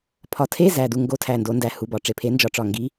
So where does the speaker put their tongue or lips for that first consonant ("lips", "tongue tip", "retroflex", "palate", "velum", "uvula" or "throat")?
lips